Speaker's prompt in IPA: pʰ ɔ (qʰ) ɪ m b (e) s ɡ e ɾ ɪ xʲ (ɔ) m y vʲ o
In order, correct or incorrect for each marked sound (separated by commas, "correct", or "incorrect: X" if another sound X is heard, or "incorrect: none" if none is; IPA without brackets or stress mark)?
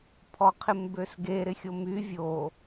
correct, incorrect: ø, incorrect: o